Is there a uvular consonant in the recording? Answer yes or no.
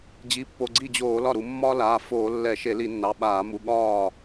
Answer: no